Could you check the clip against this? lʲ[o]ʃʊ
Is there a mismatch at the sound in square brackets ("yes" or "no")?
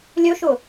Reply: yes